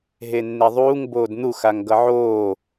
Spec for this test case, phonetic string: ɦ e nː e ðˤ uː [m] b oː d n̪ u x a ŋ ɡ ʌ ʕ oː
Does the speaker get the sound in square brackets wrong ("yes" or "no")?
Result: yes